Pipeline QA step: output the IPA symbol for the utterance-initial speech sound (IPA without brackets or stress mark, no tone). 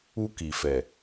u